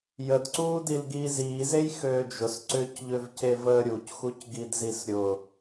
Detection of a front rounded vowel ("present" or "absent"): present